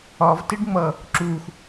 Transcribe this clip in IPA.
ɒ v t ɪ ɖ ŋ͡m ʌ | ǁ u x

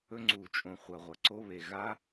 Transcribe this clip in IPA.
ɵ˦˥ ŋ͡ǀ u˧˩˧ t͡ʃʼ õ˨˩ χʷ ɐ˨˩ ʁʷ ɐ˨˩ ǀ o˦˥ β e˨˩ ɣ a˦˥

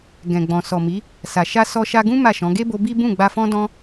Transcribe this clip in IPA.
ɡ ɛ̃˨ ɡ͡b ɔ̃˨ s ɔ˨ m i˨˦ | s a˨ ʃ a˧ s ɔ˧ ʃ a˧ ɡ ũ˦ m a˦˨ ʃ ɔ̃˨˦ ɡ e˦ b o˧ b i˦ b ũ˦˨ ɡ͡b a˧ f ɔ̃˦ d ɔ̃˦

